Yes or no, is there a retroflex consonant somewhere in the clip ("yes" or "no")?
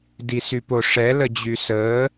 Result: yes